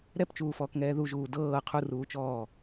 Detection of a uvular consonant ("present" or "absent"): present